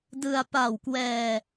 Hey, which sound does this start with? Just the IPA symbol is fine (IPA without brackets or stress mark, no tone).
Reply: d